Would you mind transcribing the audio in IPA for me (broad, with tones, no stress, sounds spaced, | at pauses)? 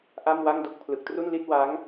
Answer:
ʔ a˥˩ m w a˥˩ ŋ d o˦˥ k̚ pʰ l ɯ˨˩ k̚ t r u˥˩ n l i˥˩ t̚ w a˦˥ ŋ